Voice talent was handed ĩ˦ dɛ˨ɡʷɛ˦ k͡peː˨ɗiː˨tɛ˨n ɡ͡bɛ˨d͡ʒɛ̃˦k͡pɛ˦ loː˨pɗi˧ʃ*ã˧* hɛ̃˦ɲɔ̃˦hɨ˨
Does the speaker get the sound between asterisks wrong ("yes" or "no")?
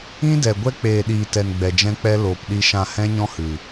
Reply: no